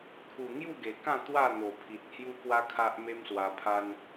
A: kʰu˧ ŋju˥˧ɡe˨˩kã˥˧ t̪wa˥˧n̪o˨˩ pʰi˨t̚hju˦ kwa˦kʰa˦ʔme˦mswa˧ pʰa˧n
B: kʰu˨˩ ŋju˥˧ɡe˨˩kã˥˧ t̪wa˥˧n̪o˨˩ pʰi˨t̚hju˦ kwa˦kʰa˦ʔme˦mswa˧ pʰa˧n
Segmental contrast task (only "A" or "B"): B